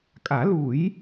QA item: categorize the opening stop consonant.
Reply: ejective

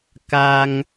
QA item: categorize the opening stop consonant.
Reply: plain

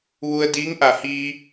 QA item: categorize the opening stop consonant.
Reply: plain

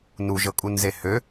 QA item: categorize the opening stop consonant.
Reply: ejective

